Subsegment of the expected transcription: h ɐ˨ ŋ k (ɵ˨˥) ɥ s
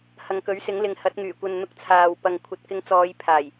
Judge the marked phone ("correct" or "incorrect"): correct